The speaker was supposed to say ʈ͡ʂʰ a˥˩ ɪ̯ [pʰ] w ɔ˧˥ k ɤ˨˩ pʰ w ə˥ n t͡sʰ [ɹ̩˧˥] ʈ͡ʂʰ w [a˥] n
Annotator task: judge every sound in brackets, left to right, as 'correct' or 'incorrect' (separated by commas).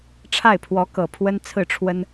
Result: correct, incorrect, incorrect